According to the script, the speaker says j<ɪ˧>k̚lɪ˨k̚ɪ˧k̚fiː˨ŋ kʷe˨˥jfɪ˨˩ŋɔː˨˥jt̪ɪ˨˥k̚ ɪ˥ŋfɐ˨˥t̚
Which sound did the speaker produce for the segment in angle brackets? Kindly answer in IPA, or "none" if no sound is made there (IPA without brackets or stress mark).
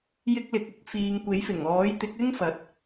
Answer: ɪ˧